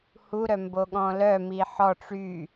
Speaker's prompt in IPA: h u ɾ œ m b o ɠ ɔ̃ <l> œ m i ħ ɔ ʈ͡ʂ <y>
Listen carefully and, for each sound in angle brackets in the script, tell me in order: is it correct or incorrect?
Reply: correct, correct

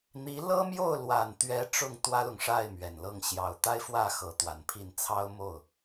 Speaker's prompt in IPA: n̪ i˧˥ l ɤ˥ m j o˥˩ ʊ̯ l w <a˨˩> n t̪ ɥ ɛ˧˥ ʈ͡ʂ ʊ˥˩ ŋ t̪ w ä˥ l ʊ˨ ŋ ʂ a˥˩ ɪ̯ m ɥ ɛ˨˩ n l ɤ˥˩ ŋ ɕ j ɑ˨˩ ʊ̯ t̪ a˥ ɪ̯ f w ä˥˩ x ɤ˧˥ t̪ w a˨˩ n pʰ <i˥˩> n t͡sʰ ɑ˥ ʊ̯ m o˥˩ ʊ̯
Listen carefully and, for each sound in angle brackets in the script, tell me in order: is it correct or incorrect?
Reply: correct, correct

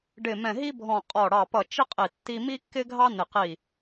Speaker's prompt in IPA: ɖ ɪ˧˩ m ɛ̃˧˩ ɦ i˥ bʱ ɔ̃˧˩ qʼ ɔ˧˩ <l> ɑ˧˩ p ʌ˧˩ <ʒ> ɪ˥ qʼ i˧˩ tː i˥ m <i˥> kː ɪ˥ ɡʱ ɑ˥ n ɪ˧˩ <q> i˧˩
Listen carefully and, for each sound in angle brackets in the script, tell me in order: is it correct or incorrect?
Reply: incorrect: ɽ, incorrect: t͡ʃ, correct, correct

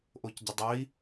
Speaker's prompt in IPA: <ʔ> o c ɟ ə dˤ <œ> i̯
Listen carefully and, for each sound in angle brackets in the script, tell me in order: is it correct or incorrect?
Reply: correct, correct

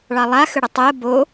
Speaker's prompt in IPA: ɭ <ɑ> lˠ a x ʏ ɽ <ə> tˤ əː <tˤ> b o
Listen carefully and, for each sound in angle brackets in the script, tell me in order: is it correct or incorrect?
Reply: correct, correct, incorrect: none

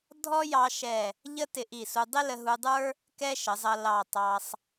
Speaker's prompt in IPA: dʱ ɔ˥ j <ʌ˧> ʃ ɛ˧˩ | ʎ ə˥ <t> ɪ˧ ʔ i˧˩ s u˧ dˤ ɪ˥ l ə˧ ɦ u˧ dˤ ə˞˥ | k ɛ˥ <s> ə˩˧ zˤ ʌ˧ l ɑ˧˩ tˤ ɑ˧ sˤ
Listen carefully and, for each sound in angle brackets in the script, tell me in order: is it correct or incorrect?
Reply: incorrect: ɑ˧, correct, incorrect: ʃ

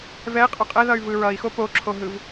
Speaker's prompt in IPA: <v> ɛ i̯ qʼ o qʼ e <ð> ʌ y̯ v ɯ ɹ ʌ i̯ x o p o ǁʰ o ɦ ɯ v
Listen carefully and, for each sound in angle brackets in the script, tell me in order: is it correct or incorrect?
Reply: correct, correct

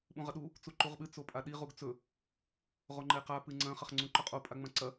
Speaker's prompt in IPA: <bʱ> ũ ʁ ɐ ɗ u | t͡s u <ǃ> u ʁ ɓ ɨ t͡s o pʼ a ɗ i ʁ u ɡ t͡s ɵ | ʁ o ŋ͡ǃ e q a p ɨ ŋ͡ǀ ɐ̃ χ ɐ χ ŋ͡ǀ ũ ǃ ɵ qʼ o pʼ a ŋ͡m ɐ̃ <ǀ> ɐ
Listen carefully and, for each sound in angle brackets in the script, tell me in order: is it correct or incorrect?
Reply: incorrect: ɓ, correct, correct

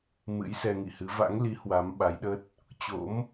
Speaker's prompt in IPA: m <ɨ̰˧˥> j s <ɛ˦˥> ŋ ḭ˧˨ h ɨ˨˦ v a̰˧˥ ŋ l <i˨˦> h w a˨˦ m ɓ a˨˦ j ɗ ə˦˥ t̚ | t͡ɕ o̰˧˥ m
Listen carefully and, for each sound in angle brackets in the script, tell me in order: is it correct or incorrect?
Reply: correct, incorrect: ɛ˧, correct

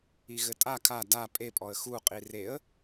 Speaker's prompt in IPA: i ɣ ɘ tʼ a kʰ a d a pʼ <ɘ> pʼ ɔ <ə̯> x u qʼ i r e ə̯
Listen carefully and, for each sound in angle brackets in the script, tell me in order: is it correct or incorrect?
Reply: incorrect: e, correct

